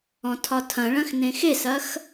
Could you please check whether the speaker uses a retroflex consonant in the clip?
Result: yes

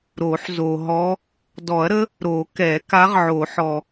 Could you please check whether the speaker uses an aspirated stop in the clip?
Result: no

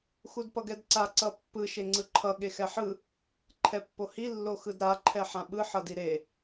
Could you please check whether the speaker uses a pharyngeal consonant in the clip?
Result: yes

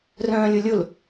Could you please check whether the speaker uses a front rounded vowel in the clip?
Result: yes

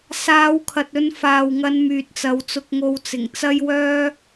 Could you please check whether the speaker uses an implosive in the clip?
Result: no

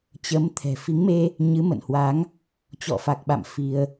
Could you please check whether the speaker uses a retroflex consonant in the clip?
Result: no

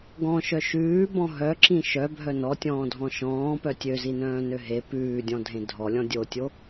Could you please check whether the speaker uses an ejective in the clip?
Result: no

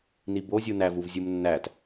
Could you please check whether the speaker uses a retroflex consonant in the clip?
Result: no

